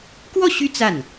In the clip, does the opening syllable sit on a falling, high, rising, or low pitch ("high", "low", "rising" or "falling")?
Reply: falling